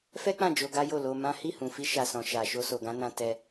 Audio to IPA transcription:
f ɛ˦ k͡p ã˦˨ d͡ʒ o˧ ɡ a˦ j o˦˨ l o˧ m ã˦ h i˦˨ h ũ˨ f i˧ ʃ a˨ s ɔ̃˨ ʃ a˨ ʃ o˧ s o˨ ɡ ã˨˦ n ã˧ t ɛ˧

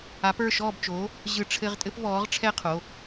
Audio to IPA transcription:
a˨˥ p ə˞˩˧˩ ʃ ɔː˥˨ b t͡ʃ oː˨˥ | ʑ ɯ˧˩ ʈ͡ʂʰ ɘ˧ ʁ tʼ ɘ˥ p v ɔː˨˥ ʁ ʈ͡ʂʰ ɛ˥ qʰ o˩˧˩

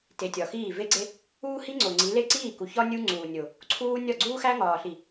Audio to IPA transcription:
t e˨ tʲ ɒ˨ x iː˦˨ v e˦ ɡ͡ǀ e˦ | uː˦ h i˦ ŋ͡ǀ o˨ ŋ͡ǀ i˨˦ l e˦˨ ǀ iː˦˨ k u˨ ç ɒ˦ nʲ u˦ ŋ͡ǀ uː˨ nʲ o˨ | ǀʰ uː˦ nʲ ɒ˦˨ ɡ͡ǀ uː˦ x æ˦ ŋ ɒː˨ ɬ i˨

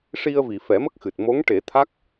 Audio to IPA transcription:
ʂ i˧ ə̯ v i˨˩˨ f ɛ˨˩˦ m ə˦˥ k̚ x ɨ˨˩ t̚ m o˧˥ ŋ ʈ e˨˩˦ t̪ʰ a˦˥ k̚

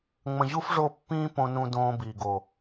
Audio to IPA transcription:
ŋ͡m ə̃˨ ʑ u˦ f ʐ o˦˨ pː ĩː˦ p õ˦ n ũ˦ d õː˦ b iː˨ ɡ o˨

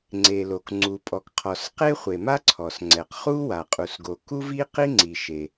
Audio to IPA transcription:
ŋ͡ǀ e˩ l o˩ k ŋ͡ǀ u˩ pʼ ɔ˩ k qʰ ɔ˩ s q e˥ χʷ e˩ m a˥ ǀʰ ɔ˩ s ŋ͡ǀ ɛ˩ q χ u˥ w a˩ qʼ u˩ s ɡ o˩ k u˥ v i˥ q i˥ ŋ͡ǀ i˩ ʃ e˩

